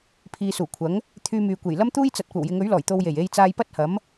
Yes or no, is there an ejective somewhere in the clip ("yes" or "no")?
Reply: no